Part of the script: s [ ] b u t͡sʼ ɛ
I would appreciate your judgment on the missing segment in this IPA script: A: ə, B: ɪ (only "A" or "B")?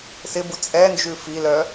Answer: B